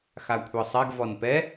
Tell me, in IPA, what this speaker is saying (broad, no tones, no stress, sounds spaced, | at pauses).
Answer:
x a kʷʰ ɤ sˤ ɛ ɡ v ɔ n p ɛ